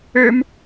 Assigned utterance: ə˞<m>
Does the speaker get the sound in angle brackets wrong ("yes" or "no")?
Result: no